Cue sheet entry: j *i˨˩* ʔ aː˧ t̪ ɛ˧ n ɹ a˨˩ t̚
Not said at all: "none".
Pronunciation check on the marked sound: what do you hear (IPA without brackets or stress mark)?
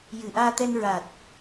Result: ɨ˨˩